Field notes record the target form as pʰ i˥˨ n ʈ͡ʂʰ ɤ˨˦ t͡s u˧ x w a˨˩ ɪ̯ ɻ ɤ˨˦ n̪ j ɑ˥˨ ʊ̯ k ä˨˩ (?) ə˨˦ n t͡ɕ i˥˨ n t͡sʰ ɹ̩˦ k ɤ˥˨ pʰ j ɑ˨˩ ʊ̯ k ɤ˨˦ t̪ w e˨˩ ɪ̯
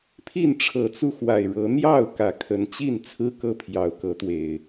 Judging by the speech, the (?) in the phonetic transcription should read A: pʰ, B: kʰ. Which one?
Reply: B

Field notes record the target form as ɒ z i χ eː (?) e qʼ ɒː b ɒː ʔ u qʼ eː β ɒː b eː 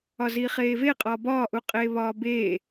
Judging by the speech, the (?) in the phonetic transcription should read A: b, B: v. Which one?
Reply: B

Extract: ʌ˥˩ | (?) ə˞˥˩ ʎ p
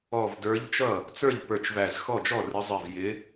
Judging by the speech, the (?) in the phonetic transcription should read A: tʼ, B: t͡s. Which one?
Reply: B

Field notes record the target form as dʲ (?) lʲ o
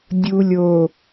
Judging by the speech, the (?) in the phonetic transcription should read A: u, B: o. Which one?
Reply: A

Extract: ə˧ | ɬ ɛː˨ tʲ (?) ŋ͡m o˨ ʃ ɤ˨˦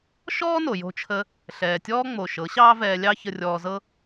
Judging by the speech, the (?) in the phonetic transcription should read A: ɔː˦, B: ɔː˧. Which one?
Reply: A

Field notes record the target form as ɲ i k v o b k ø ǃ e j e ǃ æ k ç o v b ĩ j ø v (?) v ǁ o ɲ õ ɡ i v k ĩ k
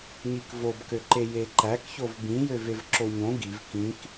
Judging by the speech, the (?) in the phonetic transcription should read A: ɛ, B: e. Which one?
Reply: B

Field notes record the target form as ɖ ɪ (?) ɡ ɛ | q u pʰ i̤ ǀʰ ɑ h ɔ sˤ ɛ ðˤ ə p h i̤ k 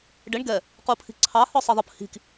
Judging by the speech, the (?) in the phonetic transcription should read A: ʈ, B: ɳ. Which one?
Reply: B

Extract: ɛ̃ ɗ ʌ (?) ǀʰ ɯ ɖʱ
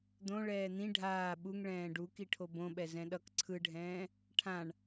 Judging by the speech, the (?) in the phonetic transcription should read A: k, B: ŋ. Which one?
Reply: A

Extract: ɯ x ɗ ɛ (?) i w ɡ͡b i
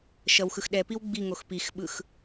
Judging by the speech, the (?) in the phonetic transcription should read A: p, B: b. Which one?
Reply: A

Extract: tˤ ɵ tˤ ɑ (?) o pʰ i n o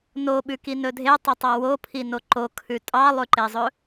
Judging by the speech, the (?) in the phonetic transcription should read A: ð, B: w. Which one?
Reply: B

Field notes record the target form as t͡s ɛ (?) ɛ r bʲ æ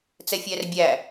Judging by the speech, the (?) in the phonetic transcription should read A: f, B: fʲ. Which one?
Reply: B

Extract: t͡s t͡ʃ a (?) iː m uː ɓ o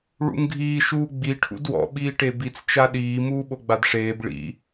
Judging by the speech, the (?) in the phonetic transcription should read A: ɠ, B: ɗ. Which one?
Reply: B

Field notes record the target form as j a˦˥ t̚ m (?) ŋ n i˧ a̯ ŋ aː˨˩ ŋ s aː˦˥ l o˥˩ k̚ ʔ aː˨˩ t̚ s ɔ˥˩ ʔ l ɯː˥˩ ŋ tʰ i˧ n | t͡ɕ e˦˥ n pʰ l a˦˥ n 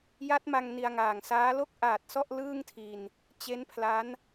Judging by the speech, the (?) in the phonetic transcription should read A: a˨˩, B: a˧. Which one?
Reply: B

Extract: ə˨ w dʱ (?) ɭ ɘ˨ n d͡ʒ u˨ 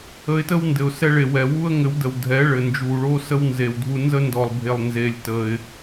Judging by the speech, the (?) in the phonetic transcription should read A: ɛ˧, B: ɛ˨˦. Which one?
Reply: B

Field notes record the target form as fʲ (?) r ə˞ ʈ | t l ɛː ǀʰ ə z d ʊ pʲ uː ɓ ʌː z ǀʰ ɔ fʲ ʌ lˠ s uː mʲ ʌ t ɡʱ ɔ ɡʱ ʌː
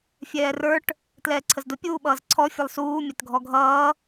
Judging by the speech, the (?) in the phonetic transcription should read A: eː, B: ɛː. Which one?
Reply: B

